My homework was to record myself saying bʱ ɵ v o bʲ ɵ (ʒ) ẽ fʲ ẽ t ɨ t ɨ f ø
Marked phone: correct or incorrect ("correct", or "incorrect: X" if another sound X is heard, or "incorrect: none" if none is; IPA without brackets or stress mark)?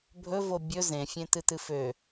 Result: incorrect: z